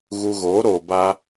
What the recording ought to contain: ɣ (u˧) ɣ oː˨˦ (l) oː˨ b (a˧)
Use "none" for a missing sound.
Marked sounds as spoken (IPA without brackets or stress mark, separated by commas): u˧, ɾ, a˧